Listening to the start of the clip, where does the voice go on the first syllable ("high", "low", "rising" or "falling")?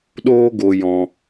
high